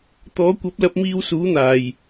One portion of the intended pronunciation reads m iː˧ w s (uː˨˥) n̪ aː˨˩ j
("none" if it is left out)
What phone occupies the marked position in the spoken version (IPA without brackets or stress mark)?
uː˨˥